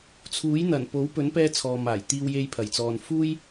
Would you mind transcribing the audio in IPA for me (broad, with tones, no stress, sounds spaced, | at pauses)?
t͡sʰ uː˨˥ j n̪ ɐ˨˩ n p o˨˥ w p ɵ˨˥ n p ɛː˥ t͡sʰ ɔː˨ m aː˨˩ j t̪ iː˧ w j e˧ j pʰ ɐ˨˩ j t͡s ɔː˨ n f uː˥ j